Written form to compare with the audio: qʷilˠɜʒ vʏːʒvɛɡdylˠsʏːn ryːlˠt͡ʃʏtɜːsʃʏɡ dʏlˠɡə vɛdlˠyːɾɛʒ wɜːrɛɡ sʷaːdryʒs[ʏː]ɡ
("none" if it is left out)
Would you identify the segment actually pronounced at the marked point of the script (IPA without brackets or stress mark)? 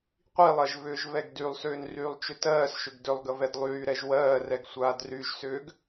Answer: ʏː